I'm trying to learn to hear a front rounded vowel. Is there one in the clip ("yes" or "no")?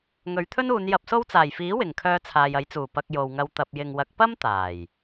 yes